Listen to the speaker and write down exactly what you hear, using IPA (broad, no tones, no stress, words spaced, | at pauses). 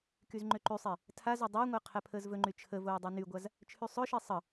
kyzŋ͡ǃøǃysˤe | tʰazɵ dˤɵːŋʷəː qʰɛpʰəːzvɵŋ͡ǃy t͡ʃʰə voːdˤynyɡʷaz | t͡ʃʰysˤɵʃe sˤə